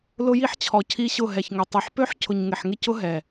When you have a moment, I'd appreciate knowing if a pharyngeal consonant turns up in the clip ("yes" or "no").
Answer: yes